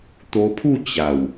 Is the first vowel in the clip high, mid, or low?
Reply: mid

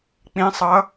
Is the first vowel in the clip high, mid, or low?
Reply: high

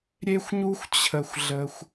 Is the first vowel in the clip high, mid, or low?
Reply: mid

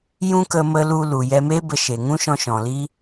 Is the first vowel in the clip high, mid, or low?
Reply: high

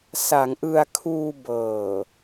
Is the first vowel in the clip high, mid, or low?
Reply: low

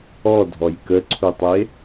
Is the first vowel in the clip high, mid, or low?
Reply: mid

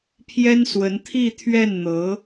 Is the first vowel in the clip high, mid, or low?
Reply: mid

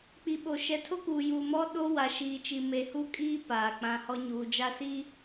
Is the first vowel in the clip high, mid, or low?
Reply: high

